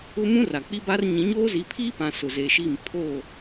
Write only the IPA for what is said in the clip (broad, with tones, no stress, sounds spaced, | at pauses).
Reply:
ʊ˦ m ũ˦ r a˨ k͡p i˦ b a˦ r ɲ ĩ˨˦ ɲ oː˦ z i˨˦ pʰ iː˦ p ã˨ s ʊ˨ z e˨ ʃ i˦˨ m pʰ o˦˨